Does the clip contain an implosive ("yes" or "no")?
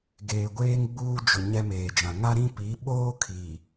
yes